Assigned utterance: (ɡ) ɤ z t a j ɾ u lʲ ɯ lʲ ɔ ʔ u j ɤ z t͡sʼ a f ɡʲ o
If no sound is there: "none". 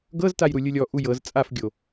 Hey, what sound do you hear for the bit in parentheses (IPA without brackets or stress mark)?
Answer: ɡ